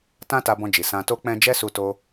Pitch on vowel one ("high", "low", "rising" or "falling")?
high